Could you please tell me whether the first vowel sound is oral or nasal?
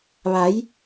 oral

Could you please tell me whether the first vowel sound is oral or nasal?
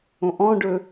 nasal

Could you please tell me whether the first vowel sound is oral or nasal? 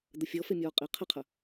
oral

